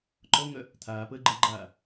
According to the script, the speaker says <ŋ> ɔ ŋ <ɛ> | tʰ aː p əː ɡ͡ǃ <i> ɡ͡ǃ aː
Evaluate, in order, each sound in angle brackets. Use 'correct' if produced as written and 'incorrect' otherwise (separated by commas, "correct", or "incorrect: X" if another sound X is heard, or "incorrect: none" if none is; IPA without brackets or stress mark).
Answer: incorrect: ǃ, incorrect: œ, incorrect: e